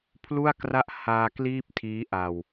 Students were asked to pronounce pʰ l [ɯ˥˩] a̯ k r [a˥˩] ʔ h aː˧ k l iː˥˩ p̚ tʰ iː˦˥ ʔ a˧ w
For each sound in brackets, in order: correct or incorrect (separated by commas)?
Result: incorrect, correct